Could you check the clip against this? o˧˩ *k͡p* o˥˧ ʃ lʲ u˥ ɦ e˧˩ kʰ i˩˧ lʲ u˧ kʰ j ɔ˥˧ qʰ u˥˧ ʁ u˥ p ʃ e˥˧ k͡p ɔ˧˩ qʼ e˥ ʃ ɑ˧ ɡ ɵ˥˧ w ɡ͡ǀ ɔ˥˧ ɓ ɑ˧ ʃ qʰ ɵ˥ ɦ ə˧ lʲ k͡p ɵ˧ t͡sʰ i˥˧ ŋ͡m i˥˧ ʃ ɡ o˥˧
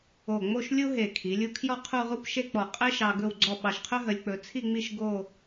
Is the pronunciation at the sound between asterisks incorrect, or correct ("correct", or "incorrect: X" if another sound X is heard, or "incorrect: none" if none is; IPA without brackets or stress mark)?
incorrect: ŋ͡m